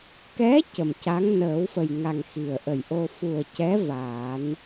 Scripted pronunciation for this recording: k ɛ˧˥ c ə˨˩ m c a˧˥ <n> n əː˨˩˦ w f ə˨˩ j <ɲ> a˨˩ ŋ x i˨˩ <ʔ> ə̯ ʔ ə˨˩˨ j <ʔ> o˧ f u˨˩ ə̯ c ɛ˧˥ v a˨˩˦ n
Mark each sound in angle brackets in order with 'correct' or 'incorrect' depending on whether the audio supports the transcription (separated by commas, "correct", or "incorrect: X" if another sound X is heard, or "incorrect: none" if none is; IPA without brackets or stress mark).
incorrect: ŋ, incorrect: ŋ, incorrect: none, correct